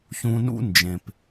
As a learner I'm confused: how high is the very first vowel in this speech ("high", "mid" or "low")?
high